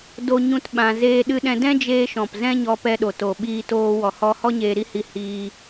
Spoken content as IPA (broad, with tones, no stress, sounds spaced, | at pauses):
d o˦ ɲ ũ˦ t ɓ ã˧ z eː˦ ɗ ɨ˧ ɗ ɛ̃˧ d ɛ̃˦ d͡ʒ eː˧ ʃ ɔ̃˨ p z ɛ̃˦ ɲ ɔ˧ p ɛ˧ ɗ o˨ t o˨ ɓ iː˧ t oː˧ w ɔ˨ h ɔ˧ h ɔ˦ ɲ eː˧ ɾ i˦ h i˧ h iː˧